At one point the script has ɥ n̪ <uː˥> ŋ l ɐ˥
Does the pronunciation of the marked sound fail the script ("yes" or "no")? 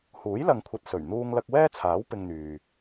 no